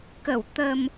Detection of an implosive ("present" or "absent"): absent